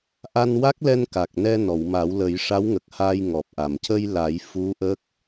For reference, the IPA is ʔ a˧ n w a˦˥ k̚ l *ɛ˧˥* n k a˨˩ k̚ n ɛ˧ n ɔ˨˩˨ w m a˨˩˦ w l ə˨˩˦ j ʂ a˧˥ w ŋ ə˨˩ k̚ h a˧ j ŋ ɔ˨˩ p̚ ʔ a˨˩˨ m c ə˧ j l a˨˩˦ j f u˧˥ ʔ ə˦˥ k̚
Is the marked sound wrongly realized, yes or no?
yes